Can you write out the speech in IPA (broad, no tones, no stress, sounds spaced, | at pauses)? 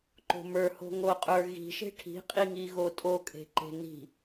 ǃ o̤ m ə˞ h o̤ ŋ o qʼ ə˞ ɣ i̤ ʃ e̤ ʈʰ i̤ qʼ i ŋ i ɣ o tʼ o kʼ e̤ ǃ e̤ n i̤